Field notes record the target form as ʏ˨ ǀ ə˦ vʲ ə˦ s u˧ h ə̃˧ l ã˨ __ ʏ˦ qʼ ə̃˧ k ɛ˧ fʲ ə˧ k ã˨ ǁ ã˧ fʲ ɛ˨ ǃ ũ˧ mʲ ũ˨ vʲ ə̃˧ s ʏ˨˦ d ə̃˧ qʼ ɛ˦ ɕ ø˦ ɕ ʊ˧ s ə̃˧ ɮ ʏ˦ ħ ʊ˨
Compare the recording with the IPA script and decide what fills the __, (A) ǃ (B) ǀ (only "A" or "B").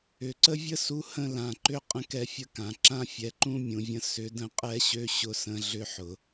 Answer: A